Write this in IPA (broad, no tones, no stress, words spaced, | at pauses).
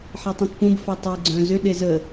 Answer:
ħetˤũtpũb fœtˤe ɡ͡ǀœ̃zʏ ɗezə